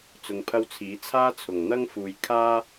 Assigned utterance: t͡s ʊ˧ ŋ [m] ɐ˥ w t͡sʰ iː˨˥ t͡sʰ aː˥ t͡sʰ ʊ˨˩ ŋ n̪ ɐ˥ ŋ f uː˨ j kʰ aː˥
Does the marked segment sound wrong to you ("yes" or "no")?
yes